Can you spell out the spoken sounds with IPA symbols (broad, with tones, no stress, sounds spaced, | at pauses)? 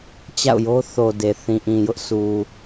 t͡ɕ a̰˦˨ ʊ̯ j o˦ θ o˨ d e˨ θ ĩ˨ ʔ ĩ˨ j ʊ˦ ʔ sʰ u˨